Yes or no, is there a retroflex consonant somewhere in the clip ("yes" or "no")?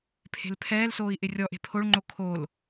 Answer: yes